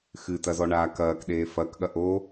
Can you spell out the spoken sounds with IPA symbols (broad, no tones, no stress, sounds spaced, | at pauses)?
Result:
x ɨ t ɐ z ɔ ɳ aː k ɐː k ɗ eː f ɐ k ɠ ɐ ʔ o